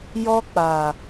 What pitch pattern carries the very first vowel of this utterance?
high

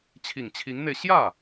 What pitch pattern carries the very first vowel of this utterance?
low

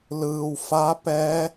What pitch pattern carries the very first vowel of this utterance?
low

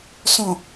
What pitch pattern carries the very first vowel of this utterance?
low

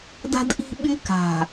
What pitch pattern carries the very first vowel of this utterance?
high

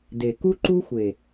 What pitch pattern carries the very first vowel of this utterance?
low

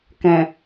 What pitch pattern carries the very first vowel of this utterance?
low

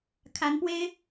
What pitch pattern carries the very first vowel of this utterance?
rising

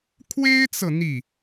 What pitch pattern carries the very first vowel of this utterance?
high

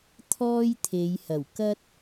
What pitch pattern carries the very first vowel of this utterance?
high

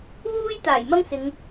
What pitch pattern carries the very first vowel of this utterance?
high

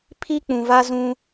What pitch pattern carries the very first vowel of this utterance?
high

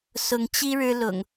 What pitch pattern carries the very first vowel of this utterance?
rising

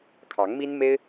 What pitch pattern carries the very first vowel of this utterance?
rising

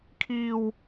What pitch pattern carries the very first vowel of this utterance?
high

